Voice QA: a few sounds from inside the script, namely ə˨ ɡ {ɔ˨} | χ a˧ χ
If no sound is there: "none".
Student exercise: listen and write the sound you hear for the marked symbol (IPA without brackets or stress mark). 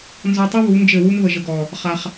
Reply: ɔ˨